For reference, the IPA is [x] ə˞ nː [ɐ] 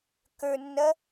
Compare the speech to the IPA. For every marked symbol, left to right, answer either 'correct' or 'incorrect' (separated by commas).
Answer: incorrect, correct